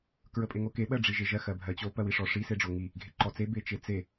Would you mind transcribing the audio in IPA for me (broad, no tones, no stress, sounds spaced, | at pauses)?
k ɹ ə pʼ e ŋ o k e ɓ ɜ ɖ͡ʐ i ʒ e ʒ ɜ x ɜ bʱ ɜ t͡ɕ o p ɜ w i ʂ ɔ ʂ i s e ɖ͡ʐ o ŋ i | ɡʱ e ǃ ɔ t͡s e b e t͡ʃ e t͡s e